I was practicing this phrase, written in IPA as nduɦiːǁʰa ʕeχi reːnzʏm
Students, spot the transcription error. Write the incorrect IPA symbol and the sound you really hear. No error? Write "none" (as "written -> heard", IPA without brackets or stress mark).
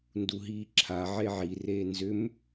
χ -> ʕ